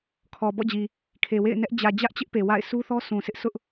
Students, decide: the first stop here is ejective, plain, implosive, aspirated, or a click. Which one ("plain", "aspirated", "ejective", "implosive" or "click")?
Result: aspirated